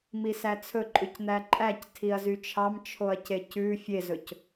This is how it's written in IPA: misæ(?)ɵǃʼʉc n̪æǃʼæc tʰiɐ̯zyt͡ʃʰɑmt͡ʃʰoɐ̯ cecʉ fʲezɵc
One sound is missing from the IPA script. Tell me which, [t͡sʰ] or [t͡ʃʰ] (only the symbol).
t͡sʰ